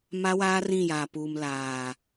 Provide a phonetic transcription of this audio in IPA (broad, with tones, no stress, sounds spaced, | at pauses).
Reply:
m a˦ w aː˦ r ĩ˦˨ j a˨ p uː˨ m l aː˨